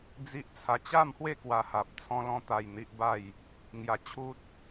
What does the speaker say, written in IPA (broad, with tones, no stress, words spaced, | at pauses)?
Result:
d͡zi˦ʔt͡sʰa˧ t͡ɕa˥˧mhwe˥˧ kwa˧ha˨p̚ t͡sʰɔ̃˧lɔ̃˧t̪a˨˩j n̪i˦ʔba˥˧j | ŋja˨˩t͡ɕʰu˦t̚